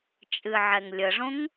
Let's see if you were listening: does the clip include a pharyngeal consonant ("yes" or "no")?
yes